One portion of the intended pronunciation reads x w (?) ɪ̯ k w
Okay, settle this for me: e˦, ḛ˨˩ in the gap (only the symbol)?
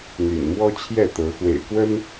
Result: ḛ˨˩